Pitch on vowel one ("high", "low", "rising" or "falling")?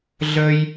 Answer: high